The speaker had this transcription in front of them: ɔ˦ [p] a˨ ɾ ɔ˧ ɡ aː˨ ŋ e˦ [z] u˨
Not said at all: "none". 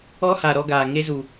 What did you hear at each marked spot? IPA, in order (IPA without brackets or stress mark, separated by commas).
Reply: h, z